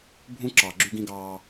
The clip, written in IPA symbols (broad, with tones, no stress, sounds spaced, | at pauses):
bʱ ũ˦ ǁ ɑ˨ ɡ͡ǁ y˦ ɡ ĩ˦ ɡ ɑː˦